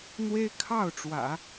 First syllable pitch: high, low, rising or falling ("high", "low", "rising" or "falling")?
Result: high